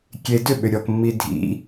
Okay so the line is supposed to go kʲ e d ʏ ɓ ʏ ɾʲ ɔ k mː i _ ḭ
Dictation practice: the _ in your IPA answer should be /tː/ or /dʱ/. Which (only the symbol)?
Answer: dʱ